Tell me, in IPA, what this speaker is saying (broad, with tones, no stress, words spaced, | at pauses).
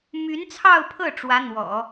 my˧˥nt͡sʰɑ˥˧ʊ̯pʰɤ˥˩ ʈ͡ʂwä˧˥n̪wɔ̰˨˩˦